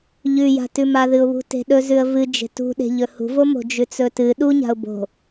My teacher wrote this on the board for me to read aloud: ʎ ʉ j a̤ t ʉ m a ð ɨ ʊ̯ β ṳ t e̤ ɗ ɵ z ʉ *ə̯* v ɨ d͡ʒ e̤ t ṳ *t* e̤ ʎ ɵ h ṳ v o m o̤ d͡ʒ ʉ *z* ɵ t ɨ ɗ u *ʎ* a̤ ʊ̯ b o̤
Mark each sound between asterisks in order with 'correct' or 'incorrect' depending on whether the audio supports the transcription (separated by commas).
correct, incorrect, incorrect, incorrect